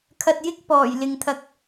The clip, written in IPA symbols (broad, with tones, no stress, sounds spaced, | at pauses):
kʰ ɐ˧ t̚ j ɪ˥ k̚ p ɔː˨˩ j l ɪ˨ ŋ t̪ʰ ɐ˨˥ k̚